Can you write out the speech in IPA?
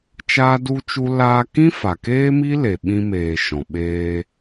t͡ʃ aː˦ d u˦ t͡ʃ u˦ l aː˧ k ĩ˦ f a˨ k eː˦ m i˦ l e˨ ɓ ĩ˧ m eː˨ ʃ ɔ̃˨ ɓ eː˧

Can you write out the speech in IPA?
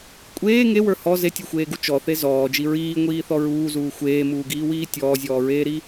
kʷʼ eː ŋ e w ə˞ h ɔ z e tʲ ɔ xʷ eː ɡ u t͡ʃ ɔ θ e z ɔː d͡ʒ i ɹ iː ŋʷ iː θ ɔ ɹ uː z uː xʷ eː m uː ɡ iː w iː tʲ ɔː zʲ ɔː ɹ eː ɾ i

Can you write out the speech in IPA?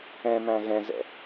ɛ̃ m æ̃ ɣ ɛ̃ z ɛ̰

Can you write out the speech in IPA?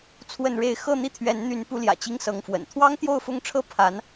t͡sʰ w ə˥˧ n ɻ e˥˧ ɪ̯ x ɤ˥˧ n̪ i˥˩ t̪ʰ ɥ ɛ˧˥ n n̪ y˧˥ n p u˧˥ l j ä̰˨˩ t͡ɕ i˥ ŋ s ɤ˧˥ ŋ f w ə̰˨˩ n t̪ʰ w ɑ˥ ŋ t̪ j o˥˧ ʊ̯ f ʊ˥˩ ŋ ʈ͡ʂʰ ɤ˥ pʰ a˧˥ n

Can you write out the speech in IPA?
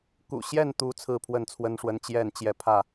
k ṵ˨˩ ɕ j ɛ˥˨ n t̪ u˨˦ t͡sʰ ɹ̩˥˨ pʰ w ə˥˨ n t͡sʰ w ə˦ n ʂ w ə˦ n t͡ɕ j ɛ˥˨ n t͡ɕ j ɛ˦ pʰ ä˥˨

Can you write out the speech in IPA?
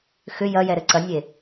x ʏ j ɐ j ɛ ɾ ɘ ǀ ɐ nʲ e

